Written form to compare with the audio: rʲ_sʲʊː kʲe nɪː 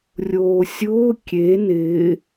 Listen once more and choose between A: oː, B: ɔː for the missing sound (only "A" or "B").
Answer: A